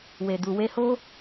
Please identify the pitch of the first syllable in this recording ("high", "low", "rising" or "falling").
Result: low